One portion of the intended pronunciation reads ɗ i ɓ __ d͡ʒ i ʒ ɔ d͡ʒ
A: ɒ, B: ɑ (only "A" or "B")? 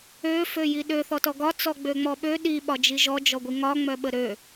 A